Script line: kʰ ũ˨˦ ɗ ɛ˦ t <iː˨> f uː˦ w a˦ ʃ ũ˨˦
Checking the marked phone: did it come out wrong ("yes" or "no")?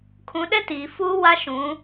no